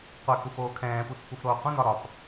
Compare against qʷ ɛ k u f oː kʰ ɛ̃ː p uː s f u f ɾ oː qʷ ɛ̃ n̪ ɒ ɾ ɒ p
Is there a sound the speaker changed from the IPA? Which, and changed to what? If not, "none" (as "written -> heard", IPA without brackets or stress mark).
uː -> u